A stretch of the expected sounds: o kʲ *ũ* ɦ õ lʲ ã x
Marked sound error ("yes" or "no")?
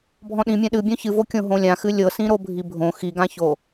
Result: yes